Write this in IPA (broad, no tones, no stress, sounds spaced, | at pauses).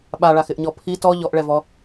ɓ a ɭ a x ɪ ʔ ɲ ɔ pʰ i t ɔ ʎ ɔ ʔ ɭ ɛ v ɔ